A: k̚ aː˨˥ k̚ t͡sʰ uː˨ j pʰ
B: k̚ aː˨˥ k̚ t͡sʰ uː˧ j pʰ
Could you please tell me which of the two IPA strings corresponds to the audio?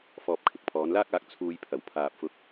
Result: B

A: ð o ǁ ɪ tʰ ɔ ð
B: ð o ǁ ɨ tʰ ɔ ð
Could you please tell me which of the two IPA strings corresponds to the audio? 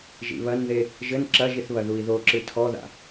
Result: B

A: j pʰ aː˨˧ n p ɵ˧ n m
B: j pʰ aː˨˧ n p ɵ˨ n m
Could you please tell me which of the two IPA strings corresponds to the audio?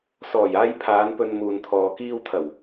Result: A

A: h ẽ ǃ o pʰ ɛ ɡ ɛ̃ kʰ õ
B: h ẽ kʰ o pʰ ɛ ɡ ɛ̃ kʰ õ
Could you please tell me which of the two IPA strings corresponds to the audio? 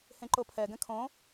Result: A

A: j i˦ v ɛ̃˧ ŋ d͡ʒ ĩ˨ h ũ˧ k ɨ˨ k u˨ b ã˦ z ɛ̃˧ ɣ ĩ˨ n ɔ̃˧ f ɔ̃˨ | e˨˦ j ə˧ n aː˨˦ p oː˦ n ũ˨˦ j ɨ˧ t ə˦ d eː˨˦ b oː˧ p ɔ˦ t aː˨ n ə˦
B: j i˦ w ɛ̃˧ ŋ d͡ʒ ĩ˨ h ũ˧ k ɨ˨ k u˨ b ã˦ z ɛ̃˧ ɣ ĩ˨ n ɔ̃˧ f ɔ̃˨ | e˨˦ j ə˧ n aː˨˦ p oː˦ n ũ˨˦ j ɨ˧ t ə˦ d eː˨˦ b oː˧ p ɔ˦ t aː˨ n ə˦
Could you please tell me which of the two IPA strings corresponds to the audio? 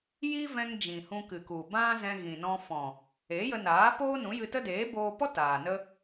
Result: A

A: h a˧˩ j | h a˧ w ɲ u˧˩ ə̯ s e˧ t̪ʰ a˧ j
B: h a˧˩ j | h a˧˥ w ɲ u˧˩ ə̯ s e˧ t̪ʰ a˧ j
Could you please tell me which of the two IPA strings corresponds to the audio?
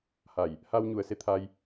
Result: A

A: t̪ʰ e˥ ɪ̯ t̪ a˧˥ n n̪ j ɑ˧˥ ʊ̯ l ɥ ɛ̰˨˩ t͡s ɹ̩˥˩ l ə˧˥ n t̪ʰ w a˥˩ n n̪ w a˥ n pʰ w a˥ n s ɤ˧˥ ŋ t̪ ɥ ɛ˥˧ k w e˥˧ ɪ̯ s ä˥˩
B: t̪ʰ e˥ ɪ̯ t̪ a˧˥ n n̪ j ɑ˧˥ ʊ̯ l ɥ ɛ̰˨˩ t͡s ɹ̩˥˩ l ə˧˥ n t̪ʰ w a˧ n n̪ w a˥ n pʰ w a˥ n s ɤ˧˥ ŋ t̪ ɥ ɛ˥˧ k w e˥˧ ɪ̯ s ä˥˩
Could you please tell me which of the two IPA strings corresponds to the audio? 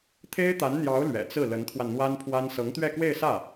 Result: B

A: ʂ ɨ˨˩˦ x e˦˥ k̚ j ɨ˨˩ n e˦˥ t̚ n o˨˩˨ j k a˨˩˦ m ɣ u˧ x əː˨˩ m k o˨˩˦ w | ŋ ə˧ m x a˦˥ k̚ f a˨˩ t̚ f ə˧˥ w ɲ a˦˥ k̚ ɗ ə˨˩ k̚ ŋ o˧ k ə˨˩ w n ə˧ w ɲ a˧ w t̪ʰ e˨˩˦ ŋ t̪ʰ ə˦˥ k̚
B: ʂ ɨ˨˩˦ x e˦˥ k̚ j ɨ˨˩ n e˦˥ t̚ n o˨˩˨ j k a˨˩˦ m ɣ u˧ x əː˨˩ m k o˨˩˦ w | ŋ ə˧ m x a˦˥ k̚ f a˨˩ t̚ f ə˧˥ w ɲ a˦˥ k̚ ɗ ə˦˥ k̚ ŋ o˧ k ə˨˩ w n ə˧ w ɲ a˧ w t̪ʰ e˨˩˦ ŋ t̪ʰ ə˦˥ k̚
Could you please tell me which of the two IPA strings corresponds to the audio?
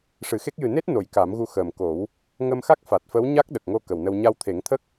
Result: A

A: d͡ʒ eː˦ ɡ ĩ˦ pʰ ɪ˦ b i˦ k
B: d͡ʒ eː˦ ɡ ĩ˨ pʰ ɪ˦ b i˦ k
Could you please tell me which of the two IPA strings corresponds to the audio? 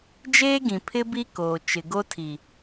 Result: B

